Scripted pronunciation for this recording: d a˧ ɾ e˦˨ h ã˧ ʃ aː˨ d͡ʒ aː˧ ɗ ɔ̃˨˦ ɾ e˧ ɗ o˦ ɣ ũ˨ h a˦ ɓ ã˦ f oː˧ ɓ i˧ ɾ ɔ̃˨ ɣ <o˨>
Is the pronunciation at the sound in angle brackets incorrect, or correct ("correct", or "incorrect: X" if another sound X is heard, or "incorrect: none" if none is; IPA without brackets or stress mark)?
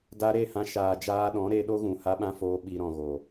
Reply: correct